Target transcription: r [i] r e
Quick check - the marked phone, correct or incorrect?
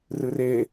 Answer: incorrect